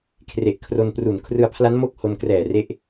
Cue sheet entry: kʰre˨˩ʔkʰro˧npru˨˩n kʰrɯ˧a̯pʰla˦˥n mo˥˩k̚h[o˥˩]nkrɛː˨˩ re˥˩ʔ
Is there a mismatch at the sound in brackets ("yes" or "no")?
yes